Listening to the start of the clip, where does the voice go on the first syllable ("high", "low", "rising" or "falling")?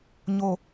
low